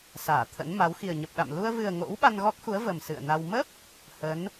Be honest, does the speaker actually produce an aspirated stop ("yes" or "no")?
yes